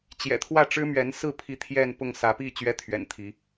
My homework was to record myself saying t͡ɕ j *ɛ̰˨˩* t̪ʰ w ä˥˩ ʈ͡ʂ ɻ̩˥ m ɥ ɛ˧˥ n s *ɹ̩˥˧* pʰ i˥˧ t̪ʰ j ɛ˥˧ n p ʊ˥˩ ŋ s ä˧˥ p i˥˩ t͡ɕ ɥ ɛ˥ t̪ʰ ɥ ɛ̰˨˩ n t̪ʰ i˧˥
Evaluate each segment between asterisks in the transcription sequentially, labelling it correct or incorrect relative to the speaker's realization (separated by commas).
correct, correct